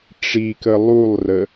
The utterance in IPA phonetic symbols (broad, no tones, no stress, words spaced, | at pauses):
ʈ͡ʂikə lˠulˠrə